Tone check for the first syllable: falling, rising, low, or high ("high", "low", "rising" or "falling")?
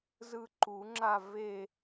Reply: falling